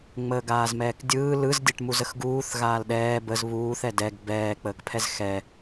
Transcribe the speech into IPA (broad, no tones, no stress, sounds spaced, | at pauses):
ŋ͡m əː ɡ aː z m ɛː k dʲ ɯː l ɯ z dʲ ɛ ʈ m u z ə x ɡ uː θ ɣ aː l ɗ ɛː b ə z β uː θ ɛ d ɛ ɡ b ɛː k͡p əː k pʰ ɛ z x ɛ